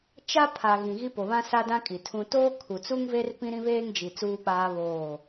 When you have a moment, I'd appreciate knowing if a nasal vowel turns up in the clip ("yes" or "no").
yes